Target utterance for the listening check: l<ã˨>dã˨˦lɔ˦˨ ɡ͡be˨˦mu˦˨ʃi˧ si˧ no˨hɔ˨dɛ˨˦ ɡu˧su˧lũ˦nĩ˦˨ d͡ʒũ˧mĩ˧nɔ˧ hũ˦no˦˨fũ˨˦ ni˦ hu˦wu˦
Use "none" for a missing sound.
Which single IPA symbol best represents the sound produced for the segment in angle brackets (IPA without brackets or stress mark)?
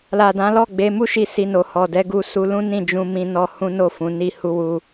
a˨